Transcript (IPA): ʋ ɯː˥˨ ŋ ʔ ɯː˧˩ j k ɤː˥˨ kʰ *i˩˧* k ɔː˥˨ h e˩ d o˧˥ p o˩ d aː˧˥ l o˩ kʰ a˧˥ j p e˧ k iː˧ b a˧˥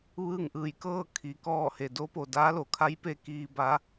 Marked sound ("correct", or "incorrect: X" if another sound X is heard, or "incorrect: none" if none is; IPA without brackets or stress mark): correct